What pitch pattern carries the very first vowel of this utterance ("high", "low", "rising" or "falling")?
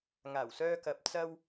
low